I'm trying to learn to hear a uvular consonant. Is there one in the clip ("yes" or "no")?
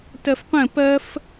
yes